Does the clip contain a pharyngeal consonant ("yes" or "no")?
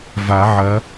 yes